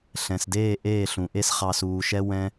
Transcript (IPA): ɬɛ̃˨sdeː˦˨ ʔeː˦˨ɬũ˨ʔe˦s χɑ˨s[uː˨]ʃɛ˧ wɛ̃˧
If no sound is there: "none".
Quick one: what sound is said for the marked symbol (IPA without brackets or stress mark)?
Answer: uː˨